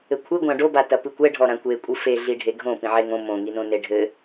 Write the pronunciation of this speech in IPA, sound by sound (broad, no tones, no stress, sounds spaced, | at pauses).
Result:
ɘ kʷʰ ɨ ɡʷ ã ɖ o b a t ɐ p ɨ kʷ ɛ ɖʱ ɔ ɾ ã kʷ e kʷʼ ɨ f e ɮ i ɖʱ e ɡʱ õ p ĩ ʕ e ŋ õ m õ ŋ i n õ n e ɖʱ ɘ